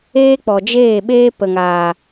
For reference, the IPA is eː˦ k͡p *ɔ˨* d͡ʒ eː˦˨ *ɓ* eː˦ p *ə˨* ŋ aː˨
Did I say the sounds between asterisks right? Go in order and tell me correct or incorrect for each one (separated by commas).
correct, correct, correct